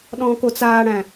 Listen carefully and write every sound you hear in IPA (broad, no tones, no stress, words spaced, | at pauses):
ɗɔ̃ːkot͡saːɽæ̃